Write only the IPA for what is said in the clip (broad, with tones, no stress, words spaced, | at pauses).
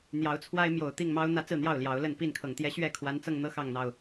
n̪jɑ˨˦ʊ̯t͡sʰwa˦ɪ̯mjo˨˩ʊ̯ t̪i˥˨ŋmɑ˦ʊ̯ n̪ä˦t͡sɹ̩˥˨n̪jɑ˥˨ʊ̯ ljɑ˨˦ʊ̯lə˥˨n pi˥˨nkʰɤ˨˩ŋ t̪jɛ˦ɕɥɛ˥˨ kʰwa˨˦nt͡sɤ˧ŋn̪ɤ˦ xɑ˥˨ŋn̪ɑ˥˨ʊ̯